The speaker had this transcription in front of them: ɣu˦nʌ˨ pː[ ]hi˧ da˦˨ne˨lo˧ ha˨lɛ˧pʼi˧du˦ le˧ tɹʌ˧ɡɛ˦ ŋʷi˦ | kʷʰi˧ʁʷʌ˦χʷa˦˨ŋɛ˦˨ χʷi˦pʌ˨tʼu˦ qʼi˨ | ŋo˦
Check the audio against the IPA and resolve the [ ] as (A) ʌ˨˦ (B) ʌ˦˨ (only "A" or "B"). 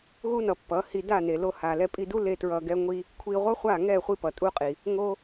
A